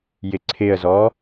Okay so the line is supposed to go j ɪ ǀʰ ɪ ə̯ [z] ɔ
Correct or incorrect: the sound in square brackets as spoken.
correct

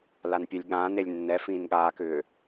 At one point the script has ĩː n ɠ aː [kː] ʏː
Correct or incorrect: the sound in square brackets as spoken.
incorrect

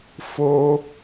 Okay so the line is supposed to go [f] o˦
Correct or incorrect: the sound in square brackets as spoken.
correct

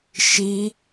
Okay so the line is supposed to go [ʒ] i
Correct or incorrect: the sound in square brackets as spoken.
incorrect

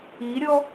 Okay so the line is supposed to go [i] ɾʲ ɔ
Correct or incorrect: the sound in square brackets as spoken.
correct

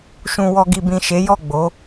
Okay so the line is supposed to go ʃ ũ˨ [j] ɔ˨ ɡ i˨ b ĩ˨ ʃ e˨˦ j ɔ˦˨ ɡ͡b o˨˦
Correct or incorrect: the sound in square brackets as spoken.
incorrect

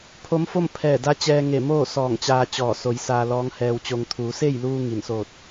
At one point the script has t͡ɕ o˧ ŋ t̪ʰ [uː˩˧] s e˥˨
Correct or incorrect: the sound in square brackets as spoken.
correct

